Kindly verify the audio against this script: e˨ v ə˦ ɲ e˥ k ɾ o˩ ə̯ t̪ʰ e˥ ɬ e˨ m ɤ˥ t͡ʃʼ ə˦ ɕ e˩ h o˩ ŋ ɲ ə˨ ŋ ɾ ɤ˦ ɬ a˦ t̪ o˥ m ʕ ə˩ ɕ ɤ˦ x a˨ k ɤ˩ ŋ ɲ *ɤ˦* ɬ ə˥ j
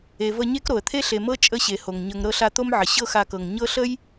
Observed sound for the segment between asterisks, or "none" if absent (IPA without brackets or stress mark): ɤ˦